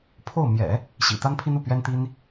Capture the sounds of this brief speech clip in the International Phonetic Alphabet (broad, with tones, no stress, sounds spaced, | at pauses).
pʰ o˥˩ ʊ̯ m j ɛ̰˨˩˦ | ɕ ḭ˨˩ t̪ a˥ n pʰ i˥ n u˥˩ p ɥ ɛ˥ n t̪ i˥ n